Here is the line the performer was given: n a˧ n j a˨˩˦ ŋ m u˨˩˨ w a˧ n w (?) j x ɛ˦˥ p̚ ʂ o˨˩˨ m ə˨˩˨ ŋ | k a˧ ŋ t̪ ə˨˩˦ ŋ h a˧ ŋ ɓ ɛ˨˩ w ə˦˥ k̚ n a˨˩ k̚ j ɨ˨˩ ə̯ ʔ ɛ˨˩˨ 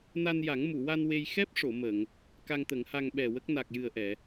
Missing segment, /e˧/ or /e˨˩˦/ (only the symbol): e˧